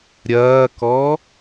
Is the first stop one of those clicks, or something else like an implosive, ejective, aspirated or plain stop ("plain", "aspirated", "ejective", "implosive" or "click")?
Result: plain